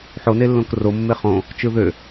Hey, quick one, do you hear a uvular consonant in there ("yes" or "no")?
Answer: yes